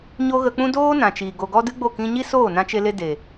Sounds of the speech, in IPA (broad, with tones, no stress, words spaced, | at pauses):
ɲo˦ɣə˧k͡pũ˦ doː˦nã˨t͡ʃiː˨ ɡo˨ɡɔ˧ dɨ˦ɡ͡bo˦˨ kĩ˧ɲi˦soː˦˨ nã˧t͡ʃe˧le˧ de˨